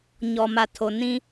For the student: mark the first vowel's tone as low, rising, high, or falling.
low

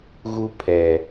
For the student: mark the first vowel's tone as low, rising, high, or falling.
high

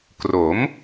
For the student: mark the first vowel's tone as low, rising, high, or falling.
rising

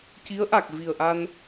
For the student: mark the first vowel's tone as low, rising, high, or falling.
rising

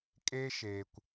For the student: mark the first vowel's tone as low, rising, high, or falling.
high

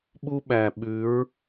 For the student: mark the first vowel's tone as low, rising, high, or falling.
high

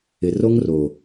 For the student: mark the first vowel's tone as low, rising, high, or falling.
low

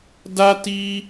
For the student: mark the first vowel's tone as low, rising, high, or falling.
high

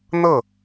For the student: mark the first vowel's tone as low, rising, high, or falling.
falling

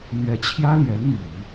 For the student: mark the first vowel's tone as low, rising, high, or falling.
rising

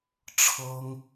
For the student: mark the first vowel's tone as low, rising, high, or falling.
high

